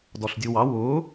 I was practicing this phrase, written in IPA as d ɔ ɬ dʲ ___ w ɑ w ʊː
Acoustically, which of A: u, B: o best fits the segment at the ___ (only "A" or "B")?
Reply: A